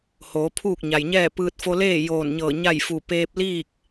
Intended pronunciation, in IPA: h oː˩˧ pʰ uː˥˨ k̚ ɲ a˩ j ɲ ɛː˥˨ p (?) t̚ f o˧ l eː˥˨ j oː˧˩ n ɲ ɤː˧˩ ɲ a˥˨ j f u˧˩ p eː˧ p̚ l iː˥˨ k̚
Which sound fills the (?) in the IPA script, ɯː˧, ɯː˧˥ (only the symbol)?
ɯː˧